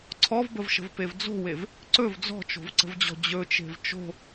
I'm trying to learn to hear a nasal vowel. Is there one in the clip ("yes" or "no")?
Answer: no